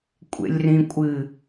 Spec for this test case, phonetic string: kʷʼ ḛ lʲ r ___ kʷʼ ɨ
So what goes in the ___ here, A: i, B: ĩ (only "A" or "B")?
B